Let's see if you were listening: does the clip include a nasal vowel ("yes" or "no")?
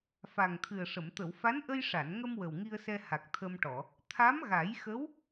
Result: no